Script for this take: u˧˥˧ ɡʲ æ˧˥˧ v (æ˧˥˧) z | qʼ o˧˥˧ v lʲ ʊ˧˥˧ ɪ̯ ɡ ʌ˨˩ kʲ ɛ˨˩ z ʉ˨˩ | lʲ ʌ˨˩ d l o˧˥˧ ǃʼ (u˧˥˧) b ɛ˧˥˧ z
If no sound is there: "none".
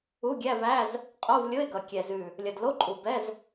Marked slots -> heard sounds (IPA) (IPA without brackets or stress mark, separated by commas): æ˧˥˧, u˨˩